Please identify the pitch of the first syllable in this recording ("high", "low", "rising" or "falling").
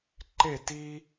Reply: falling